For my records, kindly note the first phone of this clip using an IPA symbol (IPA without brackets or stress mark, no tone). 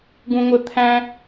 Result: ɡ